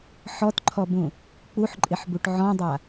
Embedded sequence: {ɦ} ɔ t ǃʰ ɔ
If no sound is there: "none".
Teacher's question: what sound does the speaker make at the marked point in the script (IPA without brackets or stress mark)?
ħ